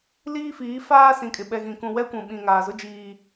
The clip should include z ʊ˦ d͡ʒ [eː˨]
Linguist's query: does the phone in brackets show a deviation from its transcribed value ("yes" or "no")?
yes